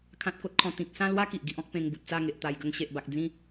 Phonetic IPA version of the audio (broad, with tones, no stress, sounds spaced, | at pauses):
kʰ ã˦ t̚ k o˦ t̚ kʰ ɔ̃˧ t̪ ĩ˨ k̚ s ã˥˧ l w a˦ k i˨ ʔ ɡ i˦ ʔ ɔ̃˦ k̚ p ẽ˧ ŋ b u˨ t̚ t͡s a˥˧ ŋ e˨ ʔ t̪ a˨˩ j ɡ ə˧ ŋ ɕ e˨ ʔ b a˨ k̚ d͡z ĩ˥˧